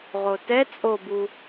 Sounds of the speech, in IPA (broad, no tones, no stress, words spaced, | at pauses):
ʁotɛ t͡sʼobu